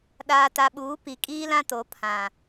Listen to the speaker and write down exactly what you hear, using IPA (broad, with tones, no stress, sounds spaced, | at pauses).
ɗ aː˨ t a˨ ɓ uː˨˦ p i˨ kʼ iː˦ l ã˦ t o˨˦ pʰ ã˨